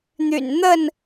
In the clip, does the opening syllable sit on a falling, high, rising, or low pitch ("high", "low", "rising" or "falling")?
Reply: low